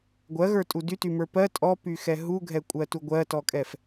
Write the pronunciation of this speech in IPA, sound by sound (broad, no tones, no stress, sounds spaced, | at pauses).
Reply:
ɡʷ ɜ ɣ ə˞ tʼ u d y t y m ə˞ p ɜ tʼ ɔ p y x ɛ ɦ u ɡʱ ɛ kʷʼ ɜ t u ɡʷ ɜ t ɔ kʼ ɛ f